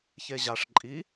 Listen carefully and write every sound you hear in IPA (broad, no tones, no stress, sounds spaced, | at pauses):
ç e ʑ a ʂ ǃʼ i